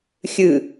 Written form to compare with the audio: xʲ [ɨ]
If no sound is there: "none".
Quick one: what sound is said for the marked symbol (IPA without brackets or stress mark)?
ɨ